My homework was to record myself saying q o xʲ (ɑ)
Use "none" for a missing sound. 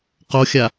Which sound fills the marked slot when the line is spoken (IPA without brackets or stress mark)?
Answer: a